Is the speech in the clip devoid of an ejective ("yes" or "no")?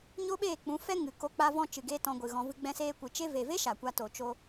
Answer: yes